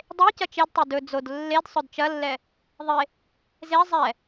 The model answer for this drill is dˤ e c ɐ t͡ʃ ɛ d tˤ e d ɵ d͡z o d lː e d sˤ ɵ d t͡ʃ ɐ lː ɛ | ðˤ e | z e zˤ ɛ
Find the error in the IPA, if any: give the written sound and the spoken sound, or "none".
none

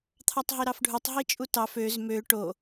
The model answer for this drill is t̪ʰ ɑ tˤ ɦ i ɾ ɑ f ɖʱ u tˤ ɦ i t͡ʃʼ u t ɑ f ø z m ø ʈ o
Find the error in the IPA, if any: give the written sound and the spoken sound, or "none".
none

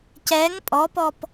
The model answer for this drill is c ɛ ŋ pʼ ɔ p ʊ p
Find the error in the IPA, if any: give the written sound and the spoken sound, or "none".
ʊ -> ɔ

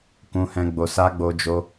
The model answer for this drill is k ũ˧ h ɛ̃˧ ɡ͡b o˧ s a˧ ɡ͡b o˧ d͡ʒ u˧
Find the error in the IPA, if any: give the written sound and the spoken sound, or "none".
u˧ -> o˧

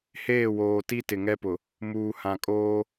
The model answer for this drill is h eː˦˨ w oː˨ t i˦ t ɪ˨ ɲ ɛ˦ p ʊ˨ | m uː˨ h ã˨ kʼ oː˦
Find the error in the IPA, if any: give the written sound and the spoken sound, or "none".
ɲ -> ŋ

